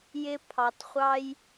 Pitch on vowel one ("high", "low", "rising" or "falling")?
high